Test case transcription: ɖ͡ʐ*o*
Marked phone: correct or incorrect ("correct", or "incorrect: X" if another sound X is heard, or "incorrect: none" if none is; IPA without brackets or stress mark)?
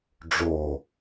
correct